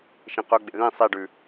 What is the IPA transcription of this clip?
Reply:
ʃ ĩ q ɵ ɡ͡b ḛ ð ĩ sˤ i ɖ ʉ

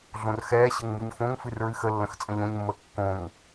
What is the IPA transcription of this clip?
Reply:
ɮ õ r x ɛː ɕ ə ŋ m u ɲ f õ ŋ f ɨ r ɹ ɨ x ə lː ə̃ x t͡sʼ ə̃ ʎ õ ɲ mː əː kː õ ŋ

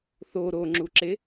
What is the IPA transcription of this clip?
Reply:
θ o ɾ o ŋ͡ǁ u ǁ e

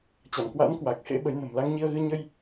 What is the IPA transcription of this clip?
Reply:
t͡ɕ a˧˩ m k w a̰˧˥ n k w a˨˩ k̚ h ḛ˧˥ ɓ ə˨˦ j n ə̤˨˩ m l a˧ ŋ ɲ i˧ ə̯ ɣ ɨ˧ ɲ ə˧ j

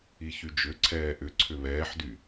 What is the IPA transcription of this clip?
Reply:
i ç y d͡ʒ ʏ ǀʰ ɛː ʔ ʏ ǀʰ ʏ β ɛː ħ d y

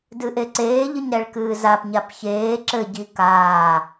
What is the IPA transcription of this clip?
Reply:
d ɨ ʔ e ǀ eː ʎ ɨ ɲ ɾ ɛ ɭ k ɨː z a p ɲ a p ç eː ǁ ɘ ɟ i k aː

